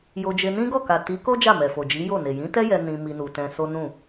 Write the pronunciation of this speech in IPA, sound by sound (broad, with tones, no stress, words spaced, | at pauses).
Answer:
jo˧d͡ʒe˧nĩ˦ɡɔ˦˨ ka˨ti˨˦ko˦ d͡ʒa˦˨mɛ˨fo˨ d͡ʒi˨˦ jo˦˨ne˨ jĩ˨˦tɛ˦ jɛ˧ nĩ˧mi˧nu˨tɛ̃˧ so˦nũ˦˨